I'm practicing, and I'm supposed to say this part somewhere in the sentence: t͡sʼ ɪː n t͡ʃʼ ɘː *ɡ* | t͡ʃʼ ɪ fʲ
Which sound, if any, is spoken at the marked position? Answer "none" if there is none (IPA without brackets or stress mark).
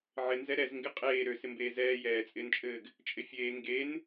ɡ